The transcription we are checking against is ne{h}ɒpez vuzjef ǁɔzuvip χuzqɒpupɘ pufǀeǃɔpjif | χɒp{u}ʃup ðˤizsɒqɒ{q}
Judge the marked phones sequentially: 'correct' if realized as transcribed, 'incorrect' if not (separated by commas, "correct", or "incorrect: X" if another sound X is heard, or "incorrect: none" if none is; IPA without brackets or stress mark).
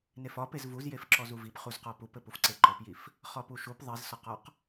incorrect: f, correct, correct